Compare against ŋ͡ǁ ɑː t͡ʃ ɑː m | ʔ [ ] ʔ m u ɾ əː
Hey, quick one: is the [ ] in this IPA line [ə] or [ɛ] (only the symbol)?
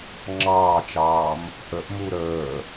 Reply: ə